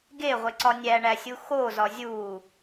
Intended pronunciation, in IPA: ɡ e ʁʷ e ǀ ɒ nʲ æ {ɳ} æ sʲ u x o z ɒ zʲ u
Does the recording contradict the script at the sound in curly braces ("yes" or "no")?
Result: no